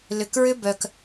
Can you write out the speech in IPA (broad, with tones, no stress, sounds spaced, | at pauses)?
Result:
l ʏ˨ k ɹ ʏ˦ b œ˨ k